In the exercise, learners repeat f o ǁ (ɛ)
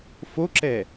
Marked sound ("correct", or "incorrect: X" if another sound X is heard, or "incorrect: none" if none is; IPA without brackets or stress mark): correct